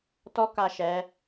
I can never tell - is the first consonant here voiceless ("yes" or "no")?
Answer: yes